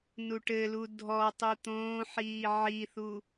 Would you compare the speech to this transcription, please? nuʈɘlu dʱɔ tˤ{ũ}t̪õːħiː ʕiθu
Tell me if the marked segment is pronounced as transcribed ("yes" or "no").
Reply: no